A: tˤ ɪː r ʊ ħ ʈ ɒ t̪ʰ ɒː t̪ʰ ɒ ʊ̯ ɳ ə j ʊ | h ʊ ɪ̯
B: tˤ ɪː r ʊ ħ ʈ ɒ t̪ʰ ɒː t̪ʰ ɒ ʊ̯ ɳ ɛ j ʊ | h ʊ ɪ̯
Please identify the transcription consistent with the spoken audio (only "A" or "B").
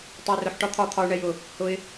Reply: B